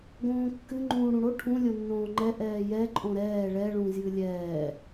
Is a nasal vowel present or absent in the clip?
present